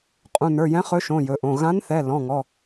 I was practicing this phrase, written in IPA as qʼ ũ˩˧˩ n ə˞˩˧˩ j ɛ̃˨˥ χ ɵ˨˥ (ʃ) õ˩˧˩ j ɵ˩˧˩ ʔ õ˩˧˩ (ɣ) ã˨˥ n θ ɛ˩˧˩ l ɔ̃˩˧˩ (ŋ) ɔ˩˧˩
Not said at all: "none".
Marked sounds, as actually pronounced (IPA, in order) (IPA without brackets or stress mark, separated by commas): ʃ, ɣ, ŋ